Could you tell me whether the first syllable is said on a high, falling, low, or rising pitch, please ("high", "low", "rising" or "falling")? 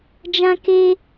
high